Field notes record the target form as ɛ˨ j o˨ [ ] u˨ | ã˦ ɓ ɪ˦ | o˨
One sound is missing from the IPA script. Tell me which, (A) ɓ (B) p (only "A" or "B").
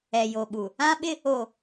A